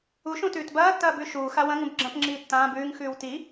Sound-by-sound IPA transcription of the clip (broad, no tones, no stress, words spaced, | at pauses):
u ʃũtʉːtbɐːtːɐː bʉʃuːxa wɐ̃ŋũb ɡ͡ǁɐ̃pŋ͡ǁiː tːãːb ʉːŋxʉːw ti